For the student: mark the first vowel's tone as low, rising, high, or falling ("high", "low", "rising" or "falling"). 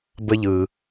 high